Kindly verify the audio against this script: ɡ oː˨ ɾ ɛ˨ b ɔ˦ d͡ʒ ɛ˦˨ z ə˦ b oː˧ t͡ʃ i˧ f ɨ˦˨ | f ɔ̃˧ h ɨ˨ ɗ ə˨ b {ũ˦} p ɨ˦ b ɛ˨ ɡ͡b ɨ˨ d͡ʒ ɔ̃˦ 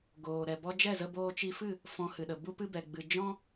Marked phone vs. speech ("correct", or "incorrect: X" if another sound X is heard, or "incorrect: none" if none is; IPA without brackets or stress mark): incorrect: u˦